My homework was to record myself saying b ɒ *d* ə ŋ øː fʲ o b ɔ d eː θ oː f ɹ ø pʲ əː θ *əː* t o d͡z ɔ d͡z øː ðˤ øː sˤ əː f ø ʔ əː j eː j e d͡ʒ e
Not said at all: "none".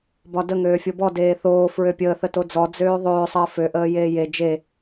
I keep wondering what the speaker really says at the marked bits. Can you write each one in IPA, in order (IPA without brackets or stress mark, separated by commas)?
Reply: d, ə